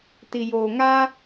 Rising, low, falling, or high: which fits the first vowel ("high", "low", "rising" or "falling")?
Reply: low